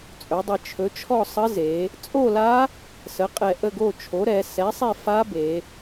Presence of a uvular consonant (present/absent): present